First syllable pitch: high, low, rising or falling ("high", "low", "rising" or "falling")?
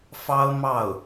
high